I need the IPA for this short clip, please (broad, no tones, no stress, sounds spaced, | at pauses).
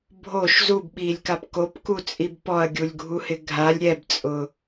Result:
bʱ o ʃ z u b ɓ iː lʲ k a p k o p k u t͡sʼ i b p ɔ ɐ̯ ɡʲ u lʲ ɡʱ u h ɪ ɡʱ a lʲ ɾʲ ɛ b t͡sʼ ʊ